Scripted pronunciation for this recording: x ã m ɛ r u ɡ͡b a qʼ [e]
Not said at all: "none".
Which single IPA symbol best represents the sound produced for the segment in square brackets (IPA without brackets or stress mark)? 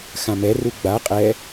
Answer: ɛ